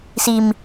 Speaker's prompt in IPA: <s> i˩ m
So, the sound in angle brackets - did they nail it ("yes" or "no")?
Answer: yes